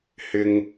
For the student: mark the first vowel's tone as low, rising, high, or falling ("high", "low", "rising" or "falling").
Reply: high